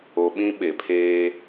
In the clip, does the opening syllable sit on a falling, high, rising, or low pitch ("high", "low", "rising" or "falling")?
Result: low